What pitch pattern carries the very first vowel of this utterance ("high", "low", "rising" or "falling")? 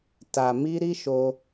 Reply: low